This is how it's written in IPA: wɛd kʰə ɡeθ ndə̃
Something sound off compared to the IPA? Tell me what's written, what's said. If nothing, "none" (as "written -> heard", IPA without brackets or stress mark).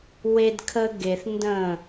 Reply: ɛ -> e